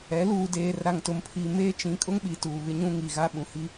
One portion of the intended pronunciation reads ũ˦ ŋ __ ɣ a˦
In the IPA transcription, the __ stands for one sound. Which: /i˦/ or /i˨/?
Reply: i˨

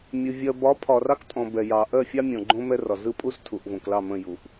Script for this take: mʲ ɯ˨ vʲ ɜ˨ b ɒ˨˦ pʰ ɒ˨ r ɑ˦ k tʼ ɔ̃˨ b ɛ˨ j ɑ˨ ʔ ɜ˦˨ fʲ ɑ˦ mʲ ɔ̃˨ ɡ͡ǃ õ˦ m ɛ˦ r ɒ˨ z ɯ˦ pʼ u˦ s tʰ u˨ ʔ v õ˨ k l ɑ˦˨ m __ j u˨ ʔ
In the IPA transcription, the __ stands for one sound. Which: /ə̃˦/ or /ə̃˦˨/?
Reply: ə̃˦˨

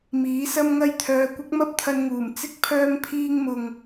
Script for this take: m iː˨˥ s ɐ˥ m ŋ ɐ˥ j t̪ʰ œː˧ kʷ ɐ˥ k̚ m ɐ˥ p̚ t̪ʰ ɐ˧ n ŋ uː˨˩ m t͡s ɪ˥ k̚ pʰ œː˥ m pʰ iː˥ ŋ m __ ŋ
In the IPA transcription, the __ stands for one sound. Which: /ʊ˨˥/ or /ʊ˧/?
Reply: ʊ˧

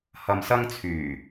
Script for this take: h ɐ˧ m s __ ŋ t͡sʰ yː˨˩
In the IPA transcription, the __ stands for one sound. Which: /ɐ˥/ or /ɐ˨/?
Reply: ɐ˥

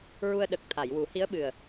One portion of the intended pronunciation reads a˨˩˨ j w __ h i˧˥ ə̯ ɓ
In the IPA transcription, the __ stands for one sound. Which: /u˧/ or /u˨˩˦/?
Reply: u˨˩˦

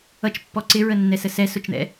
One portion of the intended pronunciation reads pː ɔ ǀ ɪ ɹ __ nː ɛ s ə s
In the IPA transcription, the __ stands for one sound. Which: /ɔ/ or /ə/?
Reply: ə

